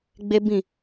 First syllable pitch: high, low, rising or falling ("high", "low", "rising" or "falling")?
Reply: high